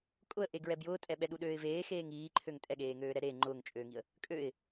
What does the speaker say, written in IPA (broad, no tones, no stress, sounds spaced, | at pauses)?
kʼ ʊ ə̯ ʔ e ɡ ɹ ɛ b j ʊː tʼ ɛ ɓ ɛ ɗ u ɗ øː ɪ̯ v eː x eː ŋ iː ǃʰ ø ŋ tʼ ɛ ɠ eː ŋ øː ɾ ɛ ɾ e ŋ͡ǃ ʊː ŋ t͡ʃʼ øː ŋ i ə̯ | kʼ ø ɪ̯